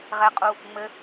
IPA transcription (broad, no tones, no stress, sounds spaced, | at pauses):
ʁ ɛ qʼ u | ŋ͡m ɘ